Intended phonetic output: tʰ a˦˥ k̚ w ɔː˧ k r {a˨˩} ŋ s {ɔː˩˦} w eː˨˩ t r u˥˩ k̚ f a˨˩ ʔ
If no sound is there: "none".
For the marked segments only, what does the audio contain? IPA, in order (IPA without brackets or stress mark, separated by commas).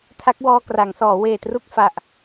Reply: a˩˦, ɔː˩˦